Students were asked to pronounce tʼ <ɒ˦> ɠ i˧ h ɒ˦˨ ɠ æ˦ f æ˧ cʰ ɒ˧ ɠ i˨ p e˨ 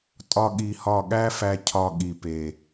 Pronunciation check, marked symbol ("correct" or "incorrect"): correct